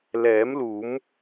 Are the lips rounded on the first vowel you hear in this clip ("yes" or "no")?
no